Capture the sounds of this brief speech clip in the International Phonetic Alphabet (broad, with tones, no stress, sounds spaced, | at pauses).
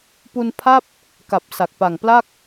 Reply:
p u˧ n pʰ a˥˩ p̚ | k a˨˩ p̚ s a˨˩ k̚ p a˨˩ ŋ p l a˥˩ k̚